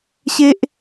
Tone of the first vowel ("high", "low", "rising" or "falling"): high